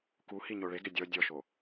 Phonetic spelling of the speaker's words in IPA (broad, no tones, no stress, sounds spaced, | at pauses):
k u h i ɲ o ɭ e ɡ ɪ dʲ ɔ dʲ ɔ ʃ o